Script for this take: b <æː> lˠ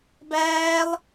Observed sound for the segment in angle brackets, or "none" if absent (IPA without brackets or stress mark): æː